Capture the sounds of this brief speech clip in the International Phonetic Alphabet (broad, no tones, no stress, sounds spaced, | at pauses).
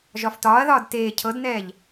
ʒ ɒ f t ɒː ɐ̯ ð ɒː d t eː cʰ ɤ d n ɛː ʎ